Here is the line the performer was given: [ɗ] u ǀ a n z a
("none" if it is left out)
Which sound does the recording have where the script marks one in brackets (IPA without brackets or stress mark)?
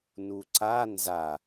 n